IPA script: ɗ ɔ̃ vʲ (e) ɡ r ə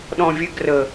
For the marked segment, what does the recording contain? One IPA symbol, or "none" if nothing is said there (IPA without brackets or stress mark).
ɛ